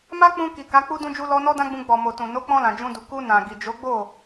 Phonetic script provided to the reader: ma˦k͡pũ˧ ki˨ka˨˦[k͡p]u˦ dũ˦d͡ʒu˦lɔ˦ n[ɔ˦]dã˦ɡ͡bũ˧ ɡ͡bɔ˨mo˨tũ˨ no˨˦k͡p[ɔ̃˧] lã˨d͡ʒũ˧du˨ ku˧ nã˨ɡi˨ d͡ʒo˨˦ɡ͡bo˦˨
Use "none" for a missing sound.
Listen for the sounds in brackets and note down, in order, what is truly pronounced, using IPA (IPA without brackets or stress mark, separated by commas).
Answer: k͡p, ɔ˦, ɔ̃˧